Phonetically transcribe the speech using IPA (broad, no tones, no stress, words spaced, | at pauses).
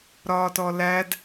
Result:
ɾɒːtɔlæd